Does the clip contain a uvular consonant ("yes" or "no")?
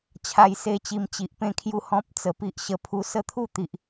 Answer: no